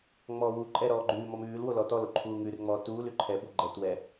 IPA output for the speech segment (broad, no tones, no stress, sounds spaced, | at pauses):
ŋ͡m ɔː w u ǃʼ ɛ ɾ ɔː ɡ͡ǃ ʉː m ɔ m ʉː l w o l ɔ t ɔ l o ǃʰ uː ŋ ʉ r ŋ͡m ɔː t uː l ʉ ǃʰ ɛ b o ɡ͡ǃ ɛ t w ɛ